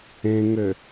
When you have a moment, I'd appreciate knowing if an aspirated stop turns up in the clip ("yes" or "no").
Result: no